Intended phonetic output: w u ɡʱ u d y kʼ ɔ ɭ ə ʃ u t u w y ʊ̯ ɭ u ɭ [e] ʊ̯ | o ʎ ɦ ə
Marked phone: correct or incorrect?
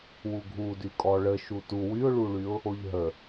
incorrect